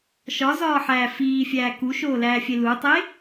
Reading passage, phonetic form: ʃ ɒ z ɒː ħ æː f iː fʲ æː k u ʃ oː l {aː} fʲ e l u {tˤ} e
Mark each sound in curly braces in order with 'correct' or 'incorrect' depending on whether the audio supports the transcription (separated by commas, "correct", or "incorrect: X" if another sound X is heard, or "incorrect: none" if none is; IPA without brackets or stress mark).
incorrect: æː, correct